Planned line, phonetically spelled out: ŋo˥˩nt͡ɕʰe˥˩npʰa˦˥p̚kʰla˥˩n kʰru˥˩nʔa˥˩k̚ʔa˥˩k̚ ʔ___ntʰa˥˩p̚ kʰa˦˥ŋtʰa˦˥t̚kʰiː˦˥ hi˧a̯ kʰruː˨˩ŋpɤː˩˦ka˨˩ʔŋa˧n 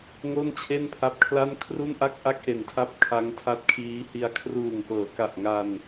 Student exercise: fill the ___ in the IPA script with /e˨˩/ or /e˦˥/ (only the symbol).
e˨˩